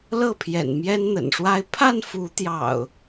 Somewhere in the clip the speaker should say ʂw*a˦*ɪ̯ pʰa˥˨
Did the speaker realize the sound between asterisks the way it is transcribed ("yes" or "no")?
yes